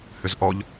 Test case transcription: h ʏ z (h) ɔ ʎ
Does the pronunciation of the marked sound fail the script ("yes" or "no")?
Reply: yes